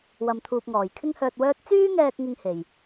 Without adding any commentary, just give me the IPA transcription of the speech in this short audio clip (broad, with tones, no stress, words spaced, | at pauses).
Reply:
wɐ˨mt̪ʰuː˨p̚ŋɔː˨˩j kʰɪ˥ŋhœː˧t̚wœː˥t̚ t͡syː˥ŋɛː˧k̚ ŋɪ˥ŋhe˨˩j